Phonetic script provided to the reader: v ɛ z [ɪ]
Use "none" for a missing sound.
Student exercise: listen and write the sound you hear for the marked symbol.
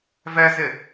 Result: ɪ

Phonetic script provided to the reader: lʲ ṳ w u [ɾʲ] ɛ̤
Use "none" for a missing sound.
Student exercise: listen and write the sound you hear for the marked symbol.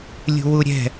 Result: ɾʲ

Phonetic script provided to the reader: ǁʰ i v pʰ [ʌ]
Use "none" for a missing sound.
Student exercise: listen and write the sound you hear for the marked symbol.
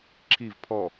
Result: ɔ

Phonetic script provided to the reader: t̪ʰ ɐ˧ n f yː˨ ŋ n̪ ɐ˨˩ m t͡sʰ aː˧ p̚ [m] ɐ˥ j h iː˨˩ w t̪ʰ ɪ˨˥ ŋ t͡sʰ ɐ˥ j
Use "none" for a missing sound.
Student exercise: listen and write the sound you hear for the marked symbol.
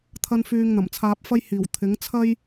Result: f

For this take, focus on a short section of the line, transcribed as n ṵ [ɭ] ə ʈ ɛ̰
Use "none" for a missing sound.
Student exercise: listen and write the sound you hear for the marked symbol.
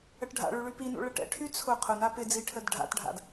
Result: ɭ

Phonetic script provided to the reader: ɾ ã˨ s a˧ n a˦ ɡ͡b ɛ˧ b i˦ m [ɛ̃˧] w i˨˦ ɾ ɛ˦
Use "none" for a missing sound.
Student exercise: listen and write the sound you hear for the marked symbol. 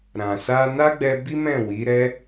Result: ɛ̃˦˨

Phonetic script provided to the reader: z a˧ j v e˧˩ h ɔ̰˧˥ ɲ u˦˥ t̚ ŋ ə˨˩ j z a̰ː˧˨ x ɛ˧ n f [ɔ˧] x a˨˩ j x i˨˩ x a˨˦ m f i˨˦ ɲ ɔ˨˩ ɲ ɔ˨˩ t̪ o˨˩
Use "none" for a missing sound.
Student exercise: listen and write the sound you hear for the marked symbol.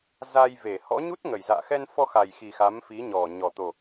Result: ɔ˧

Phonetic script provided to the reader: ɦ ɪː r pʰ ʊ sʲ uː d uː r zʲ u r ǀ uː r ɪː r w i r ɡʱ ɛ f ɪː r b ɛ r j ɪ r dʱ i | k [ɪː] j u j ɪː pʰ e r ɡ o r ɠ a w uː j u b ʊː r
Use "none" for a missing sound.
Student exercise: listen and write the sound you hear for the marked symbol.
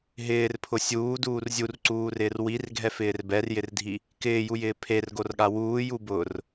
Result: ɪː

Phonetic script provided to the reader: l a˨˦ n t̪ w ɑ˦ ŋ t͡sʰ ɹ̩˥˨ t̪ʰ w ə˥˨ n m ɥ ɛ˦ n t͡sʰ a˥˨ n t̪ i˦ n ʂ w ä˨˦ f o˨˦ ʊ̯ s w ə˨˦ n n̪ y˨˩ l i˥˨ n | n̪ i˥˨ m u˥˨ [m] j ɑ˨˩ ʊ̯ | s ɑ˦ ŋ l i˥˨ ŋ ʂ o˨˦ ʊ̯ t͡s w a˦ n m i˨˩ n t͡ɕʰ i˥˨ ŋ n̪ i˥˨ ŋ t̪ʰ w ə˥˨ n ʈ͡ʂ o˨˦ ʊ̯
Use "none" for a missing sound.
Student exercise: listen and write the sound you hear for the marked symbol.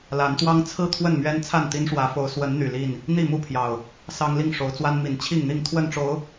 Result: pʰ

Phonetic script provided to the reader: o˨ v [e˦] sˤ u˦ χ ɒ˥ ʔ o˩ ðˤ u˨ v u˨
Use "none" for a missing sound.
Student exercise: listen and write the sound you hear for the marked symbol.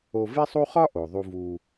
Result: e˦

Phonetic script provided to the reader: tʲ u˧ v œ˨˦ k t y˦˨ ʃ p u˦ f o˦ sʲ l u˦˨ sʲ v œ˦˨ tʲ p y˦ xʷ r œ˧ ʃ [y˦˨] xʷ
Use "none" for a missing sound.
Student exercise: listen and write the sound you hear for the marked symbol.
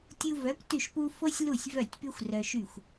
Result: y˦˨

